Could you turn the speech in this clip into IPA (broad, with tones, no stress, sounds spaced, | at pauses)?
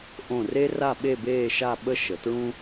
ʔ õ˧˩ r e˥ r a˥˧ ɓ e˥˧ b eː˥˧ ʃ a˥˧ ɓ ə˥ ʃ ə˩˧ t ɹ ũ˥